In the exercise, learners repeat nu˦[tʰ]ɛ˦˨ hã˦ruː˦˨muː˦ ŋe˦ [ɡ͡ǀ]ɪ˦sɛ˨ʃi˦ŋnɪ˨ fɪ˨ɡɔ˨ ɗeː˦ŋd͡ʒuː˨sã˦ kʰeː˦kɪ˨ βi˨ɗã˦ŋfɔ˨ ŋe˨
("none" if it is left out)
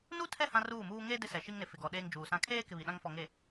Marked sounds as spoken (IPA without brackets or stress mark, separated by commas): tʰ, d